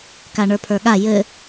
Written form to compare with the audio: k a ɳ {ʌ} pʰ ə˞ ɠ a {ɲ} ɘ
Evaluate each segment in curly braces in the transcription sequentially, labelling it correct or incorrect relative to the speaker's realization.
incorrect: ə˞, incorrect: j

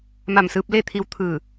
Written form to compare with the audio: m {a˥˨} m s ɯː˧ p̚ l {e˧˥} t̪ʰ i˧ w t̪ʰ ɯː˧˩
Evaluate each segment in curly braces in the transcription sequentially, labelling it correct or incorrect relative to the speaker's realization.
incorrect: a˧˩, incorrect: e˥˨

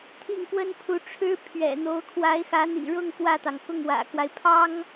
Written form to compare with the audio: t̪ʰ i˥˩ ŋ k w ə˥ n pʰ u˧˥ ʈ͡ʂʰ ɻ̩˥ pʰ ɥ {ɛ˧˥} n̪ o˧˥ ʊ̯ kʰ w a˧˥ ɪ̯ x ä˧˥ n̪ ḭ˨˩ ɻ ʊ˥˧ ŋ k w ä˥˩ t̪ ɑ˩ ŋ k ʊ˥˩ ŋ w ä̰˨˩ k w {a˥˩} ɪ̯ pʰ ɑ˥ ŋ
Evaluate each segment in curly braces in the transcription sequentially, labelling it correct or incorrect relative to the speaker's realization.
incorrect: ɛ̰˨˩, incorrect: a˦

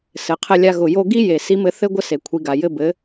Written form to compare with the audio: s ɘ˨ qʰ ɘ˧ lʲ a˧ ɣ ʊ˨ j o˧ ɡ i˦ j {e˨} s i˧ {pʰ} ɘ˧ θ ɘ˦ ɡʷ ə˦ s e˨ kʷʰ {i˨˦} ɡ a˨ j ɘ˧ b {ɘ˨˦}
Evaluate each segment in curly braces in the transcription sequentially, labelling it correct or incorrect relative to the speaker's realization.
correct, incorrect: m, correct, correct

